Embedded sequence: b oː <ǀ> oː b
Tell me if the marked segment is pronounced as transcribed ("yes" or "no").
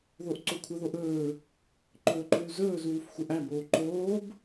no